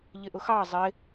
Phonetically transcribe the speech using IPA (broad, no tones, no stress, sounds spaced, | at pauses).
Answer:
ʎ ɪ ʔ ʊ x ɑ zˤ ɪ